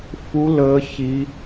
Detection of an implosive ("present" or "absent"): absent